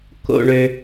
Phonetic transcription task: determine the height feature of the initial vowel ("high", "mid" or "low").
mid